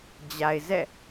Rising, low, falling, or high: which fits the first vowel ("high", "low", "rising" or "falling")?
low